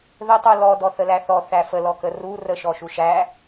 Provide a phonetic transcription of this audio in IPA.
ð ɘ tˤ u l ɔ d ɔ θ ə l æ θ ɔ θ æ f ə l ɔ k ə r u r ə ʃ ɔ ʃ u ʃ æ

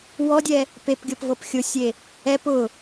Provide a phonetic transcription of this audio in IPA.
w ɔ dʲ ɛ | p e p ɡʲ ɤ p v ɤ p xʲ ʊ sʲ e | ɛ p ʊ

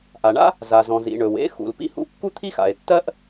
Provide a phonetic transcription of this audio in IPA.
ʔ a˩ ɳ a̰˥ | z a˩ z ɔ̃˩ z ḭ˩ ɳ ɵ˩ w ḛ˥ x ṵ˩ l p ḭ˥ h ṵ˥ kː u˥ t̪ʰ i˥ x a̰˩ e̯ tː ɜ˥ ʔ

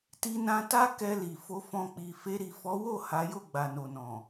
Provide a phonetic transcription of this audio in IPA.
t i˧ n ã˧ t a˦ k ɛ˧ l i˨ f o˧ f ɔ̃˧ k͡p i˨ f e˧ ɾ i˨ f ɔ˨˦ w o˦˨ h a˨˦ j o˦˨ ɡ͡b a˨ n o˨ n ɔ̃˨

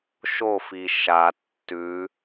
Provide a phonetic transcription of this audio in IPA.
ʃ o f i ʃ a tː ʉ

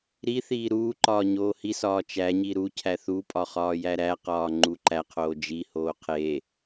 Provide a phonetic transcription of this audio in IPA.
ɾ i θ iː ɾ uː ǃ ɒː ɲ oː h i s ɒː t͡ʃ æ ɲ i ɾ u cʰ æ θ u pʼ ɒ χ ɒː j æ ɾ æ q ɒː ŋ͡ǃ u ǃ æ qʰ oː d͡ʒ i h oː qʰ e

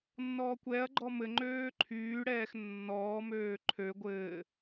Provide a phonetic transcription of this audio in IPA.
nː ɔː kʷ ɛ ɐ̯ ɡ͡ǃ ɔ m ɘ ŋ͡ǃ øː ǃʰ yː ɽ ɛː x nː ɔː m øː ǃʰ ø ɡʷ ɘː

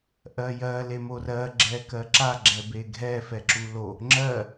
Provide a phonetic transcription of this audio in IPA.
ʔ ɜ j ɜ l e m o r ɜ ɡ͡ǁ ɛ k ɜ ǁ a ɡ͡ǁ ɛ b e ɡʱ ɛ f ɛ ǁ u l o | ŋ͡ǁ ɜ

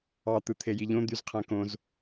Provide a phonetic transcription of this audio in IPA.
ɑ t̪ ɯ t̪ʰ e j i ʎ õ d̪ y z qʰ æ̃ k õ z

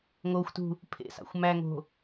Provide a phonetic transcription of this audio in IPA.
ŋ o xʷ t ṳ | pʰ ḛ s ɑ̰ xʷ m æ ŋ o̤

